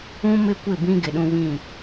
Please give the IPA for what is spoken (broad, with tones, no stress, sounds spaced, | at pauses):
ũ˦ m ɪ˦ kʷ ɪ˦˨ b ĩ˦ ɡ ɪ˨ ɗ ũ˦ β ĩ˦˨